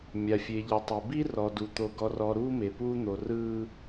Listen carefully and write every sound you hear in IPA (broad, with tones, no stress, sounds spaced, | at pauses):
mʲ a˨ fʲ e˨ ʎ ɤ˨ tˤ e˨ b i˦ r ɔ˨ d u˨ t̪ o˨ ɡ ɔ˨ r ɔ˨ ɾ uː˦ m e˨ p uː˦ n̪ o˨ r ɯː˦